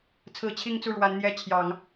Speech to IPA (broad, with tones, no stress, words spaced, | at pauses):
t͡sʰɹ̩˨˩ t͡ɕʰi˥˧ŋt͡su˥˩ɻwa˧˥n n̪jɛ˥ t͡ɕʰjɑ˨˩˦ŋ